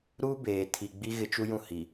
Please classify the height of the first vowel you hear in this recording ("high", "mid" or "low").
high